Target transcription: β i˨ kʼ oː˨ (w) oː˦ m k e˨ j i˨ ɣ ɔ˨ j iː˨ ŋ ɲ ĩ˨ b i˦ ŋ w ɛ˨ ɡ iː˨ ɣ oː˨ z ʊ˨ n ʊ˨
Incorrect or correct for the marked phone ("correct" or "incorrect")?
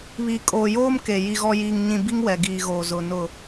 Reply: incorrect